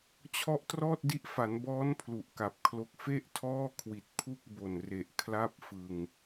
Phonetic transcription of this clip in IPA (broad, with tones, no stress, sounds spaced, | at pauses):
t͡ɕʰ ɔ˦˥ ʔ t r ɔː˥˩ t̚ d i˦˥ ʔ f a˩˦ n b ɔː˦˥ n pʰ l u˨˩ ʔ k a˨˩ p̚ kʰ l o˦˥ k̚ f e˥˩ ʔ tʰ ɔː˥˩ kʰ w i˨˩ t̚ pʰ u˥˩ k̚ b o˨˩ n r e˨˩ ʔ kʰ l a˥˩ p̚ f ɯ˧ ŋ